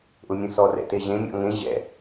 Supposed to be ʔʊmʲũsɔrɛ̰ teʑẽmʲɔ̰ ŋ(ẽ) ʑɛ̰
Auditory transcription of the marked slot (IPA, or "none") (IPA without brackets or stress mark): ẽ